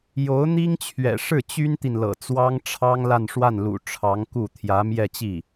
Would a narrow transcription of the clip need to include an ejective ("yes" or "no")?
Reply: no